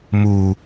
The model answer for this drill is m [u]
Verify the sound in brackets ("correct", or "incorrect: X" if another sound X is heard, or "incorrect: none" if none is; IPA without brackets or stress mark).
correct